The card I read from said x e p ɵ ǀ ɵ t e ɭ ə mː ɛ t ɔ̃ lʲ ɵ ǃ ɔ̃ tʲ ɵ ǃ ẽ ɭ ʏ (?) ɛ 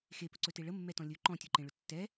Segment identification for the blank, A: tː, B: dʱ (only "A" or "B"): A